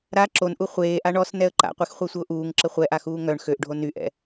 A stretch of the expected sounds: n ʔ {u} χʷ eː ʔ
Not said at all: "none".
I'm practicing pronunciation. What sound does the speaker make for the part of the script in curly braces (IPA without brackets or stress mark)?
u